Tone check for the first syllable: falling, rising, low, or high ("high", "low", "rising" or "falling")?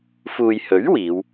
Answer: low